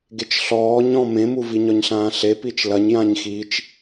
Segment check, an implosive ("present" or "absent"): absent